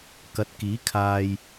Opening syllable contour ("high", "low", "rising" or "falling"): rising